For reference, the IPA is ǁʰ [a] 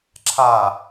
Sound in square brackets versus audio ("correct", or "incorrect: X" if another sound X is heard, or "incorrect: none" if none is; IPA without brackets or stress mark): correct